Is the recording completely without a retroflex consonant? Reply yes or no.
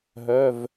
yes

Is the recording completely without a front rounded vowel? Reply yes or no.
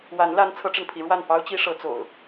yes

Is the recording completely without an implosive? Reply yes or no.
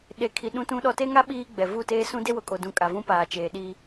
no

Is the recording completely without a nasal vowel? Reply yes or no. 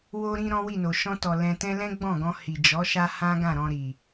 no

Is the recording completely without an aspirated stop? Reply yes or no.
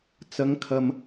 no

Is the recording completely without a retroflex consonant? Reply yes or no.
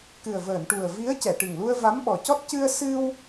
no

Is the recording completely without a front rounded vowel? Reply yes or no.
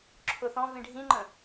yes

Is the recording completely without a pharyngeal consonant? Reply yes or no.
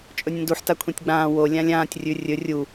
no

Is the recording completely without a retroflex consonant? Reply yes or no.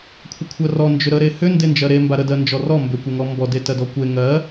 yes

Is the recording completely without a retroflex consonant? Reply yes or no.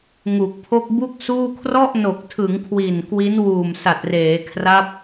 yes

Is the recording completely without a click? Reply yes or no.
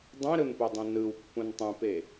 yes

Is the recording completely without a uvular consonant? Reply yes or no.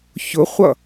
no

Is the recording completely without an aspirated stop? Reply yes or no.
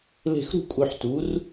yes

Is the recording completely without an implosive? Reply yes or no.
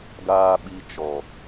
no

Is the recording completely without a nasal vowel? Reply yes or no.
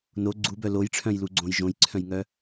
no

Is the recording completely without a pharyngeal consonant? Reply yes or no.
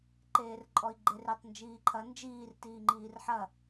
no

